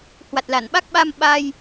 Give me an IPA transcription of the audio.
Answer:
hwa˨˩t̚la˧˩nɓa˦˥k̚ɓa˧m ɓa˧j

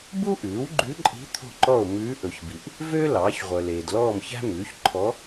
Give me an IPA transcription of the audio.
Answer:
bu˥ʔʉː˩˥wɡ͡ǃʉ˧˥ǃʼi̤˧˥ t̪ʰo̤˥˨ǃɔ˥˨o̯ mʉː˧˥ʔɵ˨çbi˨ʔ | vø˥ lɑː˩˥çʁʷœ˨leː˨d lɔː˥˨mçæ̤˥mʉː˩˥ç ǃʰɔ˧˥

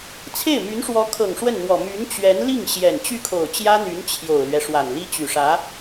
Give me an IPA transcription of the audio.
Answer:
t͡sʰe˥˩ɪ̯my˧˥nʂwɔ˧˥kʰɤ˨˩ŋ ʂwə˥˩nn̪wɔ˨˩ my˧˥nt͡ɕɥɛ˧˥n li˥˩ŋɕjɛ˨˩n t͡ɕy˥˩kʰo˨˩ʊ̯t͡ɕjä˥n̪y˧˥n t͡ɕʰjo˨˩ʊ̯lɥɛ˦ ʂwa˨˩nli˥ t͡ɕy˨˩ʂä˧˥

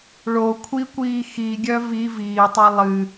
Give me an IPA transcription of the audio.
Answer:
ɭo kʷʰikʷiː xiɡʲœ vi viːtˤɛ lˠɨ

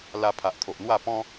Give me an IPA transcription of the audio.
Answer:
la˧pʰa˨ʔt̪ʰo˨ʔn̪wa˥˧ pɔ̃˦

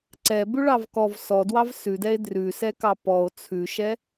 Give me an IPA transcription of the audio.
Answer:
ǀɛbʉɭɑv kɔv sɔdwɑv sʉdɛe̯ drʉsɛkɑ pɔo̯ t͡sʰʉʃɛ

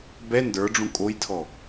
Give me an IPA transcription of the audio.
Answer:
bɛ ndə˞ɖ͡ʐũ kʼojtʰɔ

